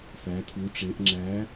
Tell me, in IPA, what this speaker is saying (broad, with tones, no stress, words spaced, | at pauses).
fæ˩˧tʰu˩˧ʈ͡ʂe˩˧ʔ ŋ͡ǁæ˨˥